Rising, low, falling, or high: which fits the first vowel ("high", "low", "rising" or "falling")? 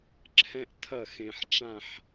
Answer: high